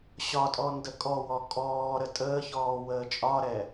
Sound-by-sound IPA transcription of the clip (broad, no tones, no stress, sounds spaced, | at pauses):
ɕ ɒ tʼ ɔ n d ə kʼ ɔ w ɔ kʼ ɔː ɾ ə tʼ əː ç ɔː w əː t͡ʃʼ ɒ ɾ ɛ